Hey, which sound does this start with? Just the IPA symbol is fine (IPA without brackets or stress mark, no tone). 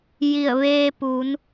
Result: j